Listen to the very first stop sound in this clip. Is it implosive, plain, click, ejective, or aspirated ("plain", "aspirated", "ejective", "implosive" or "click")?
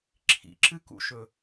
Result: click